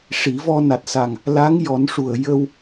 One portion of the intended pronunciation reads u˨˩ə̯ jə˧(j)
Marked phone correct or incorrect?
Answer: incorrect: w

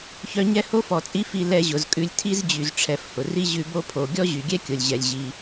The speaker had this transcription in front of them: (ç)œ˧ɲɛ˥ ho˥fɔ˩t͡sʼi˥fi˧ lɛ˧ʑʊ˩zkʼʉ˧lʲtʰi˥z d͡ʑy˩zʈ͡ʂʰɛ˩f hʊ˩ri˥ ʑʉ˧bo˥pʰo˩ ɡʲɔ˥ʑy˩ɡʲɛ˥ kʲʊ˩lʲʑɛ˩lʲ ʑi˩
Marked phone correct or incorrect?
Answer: correct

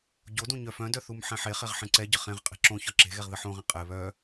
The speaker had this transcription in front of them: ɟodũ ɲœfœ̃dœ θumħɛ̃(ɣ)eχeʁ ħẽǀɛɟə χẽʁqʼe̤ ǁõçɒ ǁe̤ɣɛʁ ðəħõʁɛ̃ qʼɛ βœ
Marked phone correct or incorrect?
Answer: incorrect: ħ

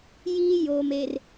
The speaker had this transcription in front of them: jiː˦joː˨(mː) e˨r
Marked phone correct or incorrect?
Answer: incorrect: m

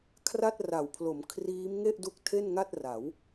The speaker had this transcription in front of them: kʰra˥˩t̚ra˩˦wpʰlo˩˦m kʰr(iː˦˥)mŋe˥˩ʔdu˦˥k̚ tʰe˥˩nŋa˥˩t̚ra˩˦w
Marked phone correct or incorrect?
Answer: correct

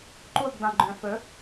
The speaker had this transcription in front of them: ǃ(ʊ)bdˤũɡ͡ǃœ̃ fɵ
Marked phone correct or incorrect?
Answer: incorrect: u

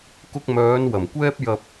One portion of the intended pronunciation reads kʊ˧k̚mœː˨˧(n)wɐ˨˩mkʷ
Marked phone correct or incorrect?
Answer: correct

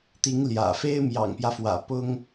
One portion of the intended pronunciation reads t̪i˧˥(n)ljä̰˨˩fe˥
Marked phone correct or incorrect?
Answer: incorrect: ŋ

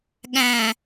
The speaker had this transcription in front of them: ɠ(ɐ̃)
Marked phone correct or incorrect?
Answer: incorrect: æ̃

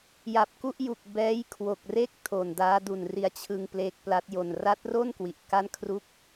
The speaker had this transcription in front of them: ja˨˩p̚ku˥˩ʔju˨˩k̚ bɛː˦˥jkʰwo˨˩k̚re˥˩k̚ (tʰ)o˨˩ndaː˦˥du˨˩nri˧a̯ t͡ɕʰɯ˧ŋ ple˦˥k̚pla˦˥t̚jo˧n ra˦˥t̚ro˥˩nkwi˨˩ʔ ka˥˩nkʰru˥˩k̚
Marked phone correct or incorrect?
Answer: correct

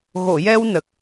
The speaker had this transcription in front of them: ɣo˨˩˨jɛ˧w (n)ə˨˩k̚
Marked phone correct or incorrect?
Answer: correct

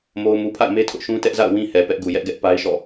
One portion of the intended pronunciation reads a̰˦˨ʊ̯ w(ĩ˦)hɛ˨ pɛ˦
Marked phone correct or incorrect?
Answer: correct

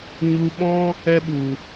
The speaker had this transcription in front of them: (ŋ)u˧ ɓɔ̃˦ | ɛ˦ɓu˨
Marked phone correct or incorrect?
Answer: incorrect: ɲ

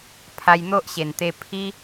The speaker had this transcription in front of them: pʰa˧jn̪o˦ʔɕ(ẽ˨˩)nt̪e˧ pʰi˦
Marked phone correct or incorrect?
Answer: incorrect: e˨˩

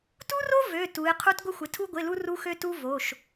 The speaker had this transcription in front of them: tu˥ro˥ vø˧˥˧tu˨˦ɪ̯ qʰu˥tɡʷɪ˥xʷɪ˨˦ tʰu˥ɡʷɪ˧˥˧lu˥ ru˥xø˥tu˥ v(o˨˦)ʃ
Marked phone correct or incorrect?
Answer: incorrect: o˧˥˧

